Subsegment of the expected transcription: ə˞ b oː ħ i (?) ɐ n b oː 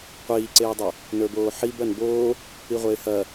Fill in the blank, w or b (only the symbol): b